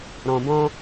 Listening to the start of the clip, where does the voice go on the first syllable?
low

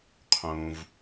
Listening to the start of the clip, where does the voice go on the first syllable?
low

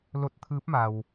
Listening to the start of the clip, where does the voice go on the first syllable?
rising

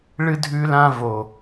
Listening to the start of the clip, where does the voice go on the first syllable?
high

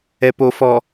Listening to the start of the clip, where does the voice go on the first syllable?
low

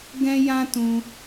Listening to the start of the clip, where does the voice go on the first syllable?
high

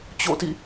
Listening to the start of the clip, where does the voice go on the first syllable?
falling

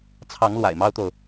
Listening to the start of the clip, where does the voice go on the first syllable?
rising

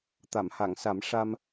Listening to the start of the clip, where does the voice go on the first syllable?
low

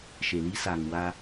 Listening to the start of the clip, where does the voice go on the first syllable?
low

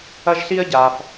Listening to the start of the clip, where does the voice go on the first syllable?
high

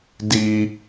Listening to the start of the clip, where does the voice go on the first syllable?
high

